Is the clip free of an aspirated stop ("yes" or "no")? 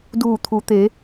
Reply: no